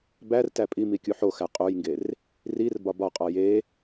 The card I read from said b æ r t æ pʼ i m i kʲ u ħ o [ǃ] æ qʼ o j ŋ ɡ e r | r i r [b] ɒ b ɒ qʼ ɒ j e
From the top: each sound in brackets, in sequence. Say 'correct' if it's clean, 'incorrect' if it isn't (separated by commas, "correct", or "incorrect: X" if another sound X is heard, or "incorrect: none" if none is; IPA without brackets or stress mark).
incorrect: x, correct